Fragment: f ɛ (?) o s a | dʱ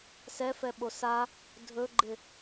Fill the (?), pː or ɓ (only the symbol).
ɓ